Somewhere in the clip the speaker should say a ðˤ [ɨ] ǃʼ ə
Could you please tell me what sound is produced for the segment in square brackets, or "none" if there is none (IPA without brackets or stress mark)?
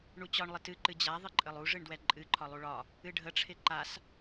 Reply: ɨ